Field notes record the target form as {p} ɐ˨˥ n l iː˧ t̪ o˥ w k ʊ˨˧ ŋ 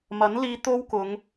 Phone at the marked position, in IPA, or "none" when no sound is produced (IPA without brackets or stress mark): m